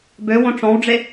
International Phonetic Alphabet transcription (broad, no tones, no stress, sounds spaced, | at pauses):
b ø w õ ʈ͡ʂ ɔ̃ w ɖ͡ʐ e